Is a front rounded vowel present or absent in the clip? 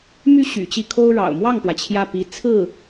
present